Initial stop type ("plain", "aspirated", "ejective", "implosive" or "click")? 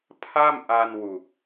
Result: aspirated